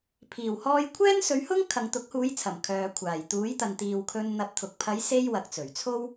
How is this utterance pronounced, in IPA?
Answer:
pʰiː˨˩w hɔː˧jkʷʰɛː˥nsɵ˨˧ɥhʊ˥ŋ kʰɐ˨ŋt̪ʊ˨˥k̚huː˨˧jt͡sʰɐ˨˩m kʰœː˨kʷʰaː˨˩j t̪uː˨˥jt̪ɐ˨nt̪iː˨wkʰɵ˧n n̪ɐ˧p̚t̪ʰʊ˨k̚ pʰɐ˨˧jse˧j wɐ˨˥k̚t͡sɵ˨˩ɥ t͡sʰo˥w

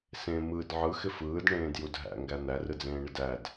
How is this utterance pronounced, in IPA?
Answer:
sẽ mɯd ʕɯxɪ fɯːdɳẽːdjud ɦæ̰ŋɡæ n̪ærɯd͡zẽːɳɪd æd

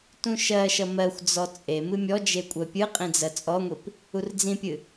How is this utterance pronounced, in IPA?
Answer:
tũʃɜʃʌ mɜxʷd͡zɔ t͡sʼe mɨmʲɔd͡ʒe kʷʼɜpʲɨqʼĩ d͡zɜt͡sʼɔŋʷip | urd͡zĩpʲɨ

